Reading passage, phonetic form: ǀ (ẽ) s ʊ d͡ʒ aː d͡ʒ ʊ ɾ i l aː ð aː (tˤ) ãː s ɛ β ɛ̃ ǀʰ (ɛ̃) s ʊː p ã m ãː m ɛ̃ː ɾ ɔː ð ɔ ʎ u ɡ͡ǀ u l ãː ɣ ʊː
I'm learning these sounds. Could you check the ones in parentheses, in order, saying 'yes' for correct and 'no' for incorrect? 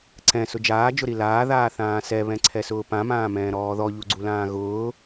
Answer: no, no, no

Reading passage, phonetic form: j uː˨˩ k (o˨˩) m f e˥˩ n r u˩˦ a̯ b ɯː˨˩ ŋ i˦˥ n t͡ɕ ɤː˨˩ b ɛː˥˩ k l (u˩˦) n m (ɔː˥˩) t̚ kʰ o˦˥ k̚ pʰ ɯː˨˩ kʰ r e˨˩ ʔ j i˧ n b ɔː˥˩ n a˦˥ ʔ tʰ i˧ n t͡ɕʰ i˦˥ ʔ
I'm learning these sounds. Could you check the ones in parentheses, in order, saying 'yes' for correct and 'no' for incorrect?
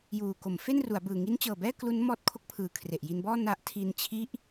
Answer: no, no, no

